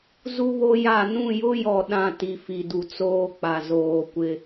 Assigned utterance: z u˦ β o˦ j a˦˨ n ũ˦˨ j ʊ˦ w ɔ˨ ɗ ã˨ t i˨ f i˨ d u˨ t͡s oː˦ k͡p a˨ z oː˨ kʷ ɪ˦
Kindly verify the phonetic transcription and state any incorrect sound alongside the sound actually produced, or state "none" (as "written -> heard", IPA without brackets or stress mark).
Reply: w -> j